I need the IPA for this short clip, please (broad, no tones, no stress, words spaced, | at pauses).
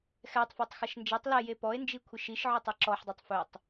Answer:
xɛtˤfɔtˤ xɐʃnd͡ʒetˤ lɛje pɔe̯nd͡ʒikʷʰiʃ iʃʕɵtˤɐ ǁɔħdˤetˤ fɵtˤ